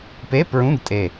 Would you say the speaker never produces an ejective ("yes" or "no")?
no